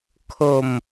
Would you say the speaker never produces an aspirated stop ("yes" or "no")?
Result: no